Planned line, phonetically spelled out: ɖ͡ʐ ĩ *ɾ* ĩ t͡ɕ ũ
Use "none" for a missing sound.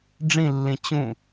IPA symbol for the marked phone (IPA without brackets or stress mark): lː